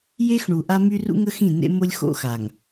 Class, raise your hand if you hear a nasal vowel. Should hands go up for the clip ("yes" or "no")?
yes